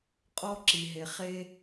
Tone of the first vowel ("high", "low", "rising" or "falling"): high